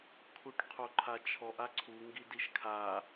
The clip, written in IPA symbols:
kʰ u ʈ qʰ o ǃʰ a t͡ʃʰ ɔ ʔ a ǀʰ u ŋ ɡ i d i ʃ kʰ a

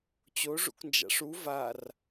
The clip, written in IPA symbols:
t͡ɕ o ʐ ṵ k n d͡ʒ a̰ ʂ u v a r

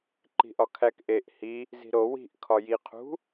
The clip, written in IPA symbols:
ǃ i̤ ʔ ɒ kʰ æ k ʔ e ʔ h i | z i̤ ɾ o w i̤ ʔ kʰ ɒ j i qʰ ṳ

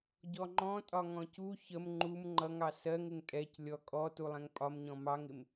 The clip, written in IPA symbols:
ɟ ɔ ŋ͡ǃ ɔ̃ tʼ ɒ ŋ ɔ̃ c u ç ə m ŋ͡ǃ u m ŋ͡ǃ ʌ ŋ ɑ s ɜ ŋ ɪ ŋ tʼ ɛ c lʲ ɔ kʼ ɔ t u lˠ ɛ̃ ŋ pʼ ɒ m ɲ ɔ̃ m ɑ ŋ ɪ m

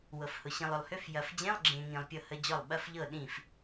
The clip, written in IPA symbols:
w ɤ˨ f h ʊ˨ ɕ ĩ˨ lˠ ʏ˨ lˠ h ʏ˧˥˧ f j ɐ˨ f d͡ʑ ẽ˧˥˧ lˠ ɡ͡ǁ ẽ˨ ŋ ĩ˨ lˠ pʲ ɤ˥˩ h ə˧˥˧ d͡ʑ ɔ˥˩ lˠ ɓ ɐ˧˥˧ f ʎ ɤ˥˩ ɗ ĩ˥˩ f

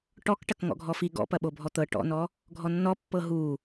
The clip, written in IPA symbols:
ʈ ɔ k ʈ ɐ k ŋ ɔ̰ ɡʱ ɔ f i ɡ ɔ̰ p ɐ ɓ o bʱ ɔ t̪ ɤ ʈ ɔ̰ n ɔ | ɡʱ ɔ nː ɔ pː ɤ ɦ u

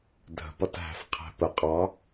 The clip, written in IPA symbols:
dʱ ə̤ p ʌ t ɦ æ̤ f qʰ æ̤ p ə qʼ ɑ

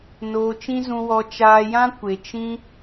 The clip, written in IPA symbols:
n oː˧ t͡ʃ ĩ˦ z ũ˧ w ɔ˧ t͡ʃ aː˧ j ã˦ kʷ e˨ t͡ʃ ĩ˦

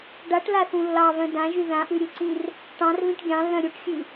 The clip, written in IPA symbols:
ɖ a ʈ l a θ ũ lː ɑ β œ̃ d ã ʒ y ð ã ʔ ʉ ɾʲ u ǀ ĩ r | ʈ ɑ̃ r β ĩ ʈ ɡʲ ɑ̃ lː œ̃ ɾʲ u ʈ xʲ ʉ

